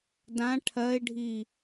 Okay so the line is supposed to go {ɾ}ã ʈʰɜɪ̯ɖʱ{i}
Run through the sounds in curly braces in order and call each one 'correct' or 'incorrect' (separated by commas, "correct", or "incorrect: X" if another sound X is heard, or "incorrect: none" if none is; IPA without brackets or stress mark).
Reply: incorrect: d, correct